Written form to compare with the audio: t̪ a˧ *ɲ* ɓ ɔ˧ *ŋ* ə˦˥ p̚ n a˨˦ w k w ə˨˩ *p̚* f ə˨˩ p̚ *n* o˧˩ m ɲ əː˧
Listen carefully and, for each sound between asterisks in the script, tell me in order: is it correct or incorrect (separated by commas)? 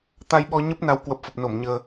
incorrect, incorrect, correct, correct